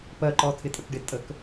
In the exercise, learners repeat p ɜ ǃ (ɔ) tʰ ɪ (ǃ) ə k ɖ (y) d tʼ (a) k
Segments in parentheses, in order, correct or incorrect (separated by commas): correct, incorrect, incorrect, incorrect